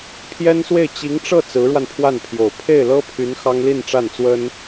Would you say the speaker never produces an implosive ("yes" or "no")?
yes